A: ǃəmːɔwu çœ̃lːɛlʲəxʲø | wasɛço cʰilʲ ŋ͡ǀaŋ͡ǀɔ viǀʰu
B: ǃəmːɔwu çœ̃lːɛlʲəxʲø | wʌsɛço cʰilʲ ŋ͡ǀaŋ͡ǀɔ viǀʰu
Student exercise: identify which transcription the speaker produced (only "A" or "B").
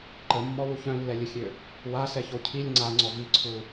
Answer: A